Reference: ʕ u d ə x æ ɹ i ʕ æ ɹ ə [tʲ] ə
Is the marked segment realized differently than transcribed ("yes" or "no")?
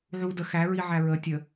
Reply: no